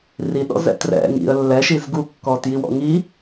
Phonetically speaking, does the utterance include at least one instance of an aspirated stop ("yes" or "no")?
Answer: no